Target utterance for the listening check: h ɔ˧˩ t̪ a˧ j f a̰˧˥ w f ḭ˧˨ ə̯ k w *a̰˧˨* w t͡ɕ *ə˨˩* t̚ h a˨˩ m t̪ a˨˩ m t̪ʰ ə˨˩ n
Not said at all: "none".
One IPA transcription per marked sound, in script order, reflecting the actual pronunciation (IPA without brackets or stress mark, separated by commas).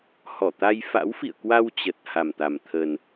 a˧, ə˨˩